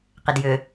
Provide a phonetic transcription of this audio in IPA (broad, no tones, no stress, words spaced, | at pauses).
qɪdjʏ